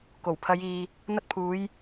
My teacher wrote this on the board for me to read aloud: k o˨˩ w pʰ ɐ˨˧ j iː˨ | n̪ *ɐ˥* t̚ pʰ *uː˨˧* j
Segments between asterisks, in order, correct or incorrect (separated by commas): incorrect, correct